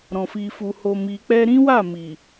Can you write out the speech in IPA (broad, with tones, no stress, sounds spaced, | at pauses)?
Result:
ɾ ɔ̃˨ f i˨ f u˨ h o˨ m i˨ k͡p ɛ˧ ɾ ĩ˦ w a˦˨ m i˨